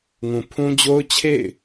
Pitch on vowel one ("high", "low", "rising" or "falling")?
low